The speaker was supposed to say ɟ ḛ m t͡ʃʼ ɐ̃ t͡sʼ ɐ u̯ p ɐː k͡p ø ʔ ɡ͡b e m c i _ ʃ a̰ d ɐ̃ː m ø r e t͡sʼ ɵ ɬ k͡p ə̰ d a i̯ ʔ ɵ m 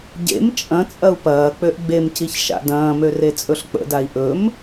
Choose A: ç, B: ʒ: A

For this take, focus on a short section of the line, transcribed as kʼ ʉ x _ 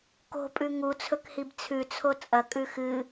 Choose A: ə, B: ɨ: B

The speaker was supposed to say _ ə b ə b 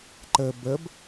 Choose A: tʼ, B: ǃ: B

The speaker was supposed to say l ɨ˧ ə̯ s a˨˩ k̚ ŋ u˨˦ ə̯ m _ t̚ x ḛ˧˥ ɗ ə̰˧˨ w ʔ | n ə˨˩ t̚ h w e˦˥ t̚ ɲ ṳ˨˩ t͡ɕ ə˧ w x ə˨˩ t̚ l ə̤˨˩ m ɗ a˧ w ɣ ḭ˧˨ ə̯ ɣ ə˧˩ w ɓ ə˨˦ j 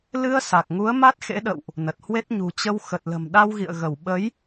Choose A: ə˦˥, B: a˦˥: B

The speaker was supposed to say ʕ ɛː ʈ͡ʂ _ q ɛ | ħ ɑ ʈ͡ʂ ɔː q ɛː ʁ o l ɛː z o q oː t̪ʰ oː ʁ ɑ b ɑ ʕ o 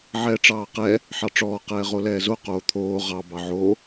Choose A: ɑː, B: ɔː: A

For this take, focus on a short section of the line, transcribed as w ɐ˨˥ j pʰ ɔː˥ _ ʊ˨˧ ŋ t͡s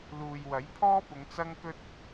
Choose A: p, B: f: A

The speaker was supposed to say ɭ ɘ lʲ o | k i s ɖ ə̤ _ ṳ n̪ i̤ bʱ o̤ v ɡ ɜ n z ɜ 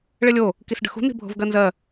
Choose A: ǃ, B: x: B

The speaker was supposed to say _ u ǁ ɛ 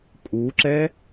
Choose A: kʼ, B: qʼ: A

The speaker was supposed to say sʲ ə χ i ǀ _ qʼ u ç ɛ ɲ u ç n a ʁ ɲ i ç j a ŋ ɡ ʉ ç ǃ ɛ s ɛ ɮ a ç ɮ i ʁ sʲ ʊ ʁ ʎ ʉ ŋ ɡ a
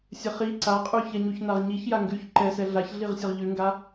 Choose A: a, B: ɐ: A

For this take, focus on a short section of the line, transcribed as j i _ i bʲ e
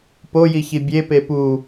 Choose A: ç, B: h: A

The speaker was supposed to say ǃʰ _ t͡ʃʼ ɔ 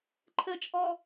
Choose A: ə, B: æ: A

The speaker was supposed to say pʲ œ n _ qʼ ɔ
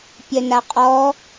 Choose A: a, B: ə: A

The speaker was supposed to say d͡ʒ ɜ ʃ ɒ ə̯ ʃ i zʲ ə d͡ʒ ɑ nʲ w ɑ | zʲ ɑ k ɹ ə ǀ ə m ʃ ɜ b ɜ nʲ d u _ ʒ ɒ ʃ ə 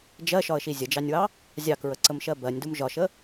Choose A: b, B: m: B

